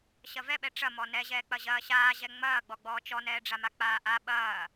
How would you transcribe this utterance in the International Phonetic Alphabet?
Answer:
ɕ ɐ v ɛ ɓ ɛ ʈ͡ʂ ɐ m ɔ n ɛ ʑ ɛː k͡p ɐ ʑ ɐː ɕ aː ʑ ɛ ŋ͡m ɐː ɡ͡b ɔ ɡ͡b ɔː t͡ʃ ɔ n ɛː ɖ͡ʐ a m a k͡p aː ʔ a ɓ ɐː

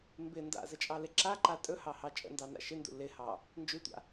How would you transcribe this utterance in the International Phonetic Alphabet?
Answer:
m b ɪ n d a̰ z ə t͡ʃʼ ɑ l ɪ ǁ a ǃ a tʼ ɵ h ɑ h ɑ t͡ʃʼ ə̰ n d ɑ n a̰ ʃ ɪ n d ṵ l ɪ h ɑ | n d͡ʒ ʉ tʷ a̰

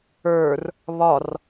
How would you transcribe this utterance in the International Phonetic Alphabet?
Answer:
ə˞ r | β ɒ r

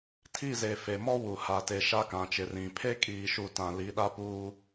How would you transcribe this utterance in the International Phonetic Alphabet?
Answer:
tʰ i˦˨ z e˨ f e˨ m ɔ˦ w u˨ h a˨ t e˨ ʃ a˦ k ã˨ t͡ʃ ɪ˨ r ĩ˨ pʰ e˦ kʼ iː˨ ʃ u˨ t ã˨ l i˨˦ ɗ a˦ p uː˦

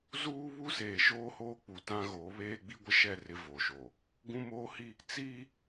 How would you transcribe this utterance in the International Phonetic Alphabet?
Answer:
z uː˦ β u˦ s eː˨ ʃ oː˦ h oː˦ k͡p u˨ t ã˦ ɣ oː˨˦ β eː˦ ɡ͡b i˦ ɡʷ ɪ˦ ʃ ɛ˦˨ r ɪ˦ v oː˨ ʃ oː˨ | ɡ ũ˦ m oː˦ h i˦ | t͡s iː˦

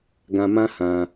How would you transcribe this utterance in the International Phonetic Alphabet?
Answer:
ɡ ã˧ m ã˦ h ã˧

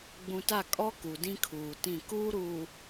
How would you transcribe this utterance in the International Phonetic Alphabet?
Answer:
ɡ͡b ũ˨ t a˦˨ kʼ ɔ˦ k u˨ d ĩ˦ kʰ uː˨ t ĩ˦˨ k uː˦ ɾ uː˨

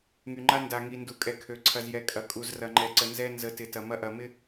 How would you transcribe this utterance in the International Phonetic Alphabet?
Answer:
ŋ y˨ ŋ͡ǃ a˦ n d a˨ ŋ i˨ n d u˨ kʼ ɛ˨ kʰ ø˨ ǀʰ ɐ˨ z j ɛ˨ kʼ ɐ˨ kʼ u˨ z r ɐ˨ ŋ͡ǃ ɛ˨ ǀ ə˨ n z ɛ˦ n z ə˨˦ t ɪ˨ t ɐ˨ m ɐ˦ ʔ ɐ˨ m ɪ˦

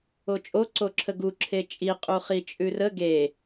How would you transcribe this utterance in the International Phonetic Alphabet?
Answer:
o t͡ʃʼ o ǀ o ǁʰ ə ɡ u ǁʰ e t͡ʃʼ i qʼ u χ i t͡ʃʼ ʉ r ə ɡ e

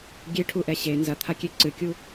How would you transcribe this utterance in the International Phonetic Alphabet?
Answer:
ɡʲ e ʈʰ u ʔ ɛ ɕ e n z ɐ t̪ʰ a kʲ e ǀ ɨ kʲ u

